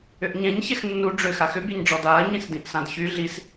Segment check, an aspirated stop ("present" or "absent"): absent